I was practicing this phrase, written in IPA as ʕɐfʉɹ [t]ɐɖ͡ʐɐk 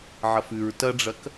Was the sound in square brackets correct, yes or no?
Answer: yes